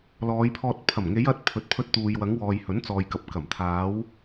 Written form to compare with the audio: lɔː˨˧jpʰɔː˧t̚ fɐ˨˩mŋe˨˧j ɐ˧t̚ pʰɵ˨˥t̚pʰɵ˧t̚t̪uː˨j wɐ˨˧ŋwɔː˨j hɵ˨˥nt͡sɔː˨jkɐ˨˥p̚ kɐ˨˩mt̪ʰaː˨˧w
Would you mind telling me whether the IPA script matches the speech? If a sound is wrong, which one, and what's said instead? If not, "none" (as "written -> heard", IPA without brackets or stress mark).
f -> pʰ